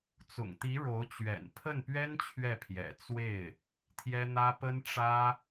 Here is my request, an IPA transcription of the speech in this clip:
t͡s ʊ̰˨˩ ŋ t̪ i˧˥ ɻ o˧˥ ʊ̯ t͡ɕ ɥ ɛ̰˨˩ n pʰ ə˥˩ n p ɥ ɛ˥ n t͡ɕʰ ɥ ɛ˥˩ pʰ j ɛ̰˨˩ t͡s w e˥˩ ɪ̯ | t̪ʰ j ɛ˥ n̪ ä˥ p ə˥ n ʈ͡ʂ ä˥

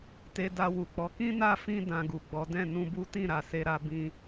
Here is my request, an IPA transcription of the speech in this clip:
t e˧ d a˧ w u˨ k͡p ɔ˨˦ k ĩ˦ n a˦˨ f ĩ˧ d ã˧ ɡ u˨ ɡ͡b ɔ˨˦ d ɛ̃˦˨ n ũ˧ b u˦ t ĩ˦˨ ɾ a˨ s e˧ ɾ a˧ b ĩ˦

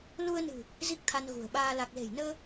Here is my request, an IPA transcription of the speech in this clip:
l u˧ ə̯ n ɨ̤˨˩ | z i˦˥ k̚ t̪ʰ a˧ n ɣ ṳ˨˩ ə̯ ɓ aː˧ l a˨˩ k̚ l e̤˨˩ j n əː˧

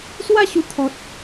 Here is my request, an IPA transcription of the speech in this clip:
s w a˥˧ ɕ u˧ t̪ʰ ɔ˨ t̚

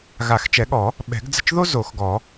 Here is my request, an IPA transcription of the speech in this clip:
ɣ a˨˩˦ x t͡ʃ ɛ˨˩˦ ɠ ɔ˨˩˦ | ɓ ɛ̤˨˩˦ ɡ d͡z ə̤˦˨ t͡ʃ ð o˥ z o˨˩˦ x ɡ ɔ˨˩˦

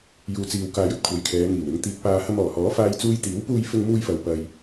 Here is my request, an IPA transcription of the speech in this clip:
j uː˨ t͡s iː˨ w k aː˧ j ɵ˥ t̚ kʷʰ ɐ˨˥ j kʰ ɛː˨˧ ŋ iː˨˩ w ɪ˨ ŋ t̪ iː˨ k̚ p aː˨ h ɐ˧ m ɔː˨˩ h ɔː˨˥ f aː˥ j t͡s uː˥ j t̪ iː˨˥ w p uː˧ j f ɪ˧ ŋ m uː˧ j f ɐ˨ w p ɐ˨ j

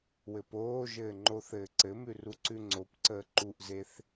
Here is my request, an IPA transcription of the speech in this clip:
w ɘ p oː ʒ ɘː ŋ͡ǃ o θ ɘː ǀ ɘ m ʉ r u ǀ ʉ ŋ͡ǀ o p ǀ əː ǃ u ʔ z e θ

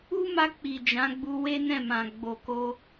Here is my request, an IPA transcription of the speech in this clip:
u˦ m a˧ k͡p i˨ d͡ʒ ã˨˦ ɡ͡b u˧ w e˦ n ɛ̃˦˨ m ã˨ ɡ͡b o˨ k o˧

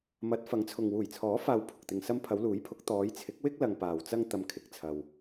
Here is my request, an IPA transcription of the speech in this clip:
m ɐ˨˥ t̚ f ɐ˨˥ ŋ t͡sʰ ʊ˨ ŋ w uː˨˩ j t͡sʰ ɔː˨˥ f aː˨ w pʰ ʊ˨ k̚ t̪ ɪ˧ ŋ s ɐ˥ m pʰ ɐ˨˧ w l uː˨˥ j pʰ ʊ˨˥ k̚ t̪ ɔː˨˧ j t͡sʰ ɪ˨˥ k̚ w ɪ˥ k̚ l ɐ˧ ŋ p aː˨ w t͡s ɐ˥ ŋ t̪ ɐ˧ m kʰ ɪ˨˥ k̚ t͡sʰ ɐ˧ w

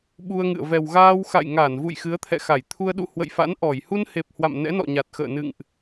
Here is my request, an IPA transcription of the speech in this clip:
ɓ u˧ ə̯ ŋ ɨ̰˧˨ ə̯ v ɛ˨˩ w ɣ aː˧ w x a̰˧˨ j ŋ a˧˩ n v ṵ˧˨ j x ɨ˨˦ ə̯ t̪ʰ ɛ̰˧˨ x a˧˩ j t̪ʰ u˧ ə̯ ɗ ṵ˧˨ h w ə̰˧˨ j f a̰˧˥ n ʔ ɔ˧˩ j h u˧ n h e˨˩ p̚ h w a̰˧˨ m n ɛ̰˧˥ n ɔ̰˧˨ ɲ a˨˩ t̚ x ə̰ː˧˨ n ɨ̰˧˨ ŋ ʔ

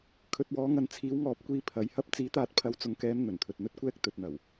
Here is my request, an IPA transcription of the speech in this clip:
kʰ ɵ˨ t̚ w ɔː˨˧ ŋ ɐ˨ n t͡sʰ iː˨˥ w ŋ ɔː˨˥ p̚ kʷ iː˧ pʰ ɐ˨˧ j h ɐ˥ p̚ t͡s iː˨˥ t̪ aː˧ t̚ pʰ ɐ˨˧ w t͡s ʊ˨ ŋ k ɛː˨˧ m n̪ ɵ˨˩ n t̪ʰ ɵ˨ t̚ n̪ ɵ˥ t̚ kʷ ɛː˥ k̚ t̪ ɵ˨ t̚ n̪ ɐ˨˩ w

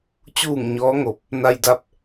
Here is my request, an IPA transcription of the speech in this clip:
t͡ɕ uː˧˩ ŋ ɲ ɔː˧˥ ŋ o˧˩ p̚ | n a˧ j d a˧˥ p̚

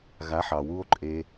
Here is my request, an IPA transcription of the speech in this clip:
ɣ a˨˦ ħ ɑ˨ w u˧ o̯ ǃʼ e˧

